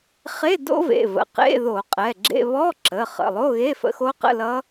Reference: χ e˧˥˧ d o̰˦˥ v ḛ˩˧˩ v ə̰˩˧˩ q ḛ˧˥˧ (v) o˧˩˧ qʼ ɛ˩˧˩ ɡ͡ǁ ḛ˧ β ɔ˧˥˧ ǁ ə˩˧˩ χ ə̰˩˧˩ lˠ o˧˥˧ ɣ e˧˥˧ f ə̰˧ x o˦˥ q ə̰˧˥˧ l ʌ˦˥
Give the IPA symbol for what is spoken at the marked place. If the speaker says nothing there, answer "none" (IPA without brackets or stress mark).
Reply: ð